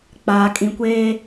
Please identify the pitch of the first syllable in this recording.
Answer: low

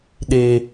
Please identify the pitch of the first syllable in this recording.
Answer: low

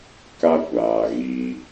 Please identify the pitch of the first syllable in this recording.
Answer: high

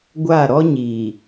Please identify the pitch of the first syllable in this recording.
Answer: falling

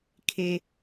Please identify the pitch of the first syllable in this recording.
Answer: low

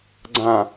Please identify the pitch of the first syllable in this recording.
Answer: low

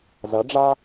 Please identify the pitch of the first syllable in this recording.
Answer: rising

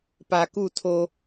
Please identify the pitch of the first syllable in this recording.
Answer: low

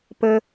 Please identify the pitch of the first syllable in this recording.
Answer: high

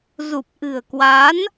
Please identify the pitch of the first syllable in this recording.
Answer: low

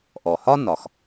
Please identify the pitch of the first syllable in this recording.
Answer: low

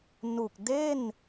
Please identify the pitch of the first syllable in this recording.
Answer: low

